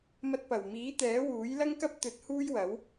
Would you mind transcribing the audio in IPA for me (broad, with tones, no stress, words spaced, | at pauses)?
mɐ˧t̚pɐ˨˩w miː˨˥t̪ɛː˨˥wuː˨˥j lɐ˥ŋkɐ˥p̚t̪ɵ˨˥t̚ huː˥jwɐ˨˥w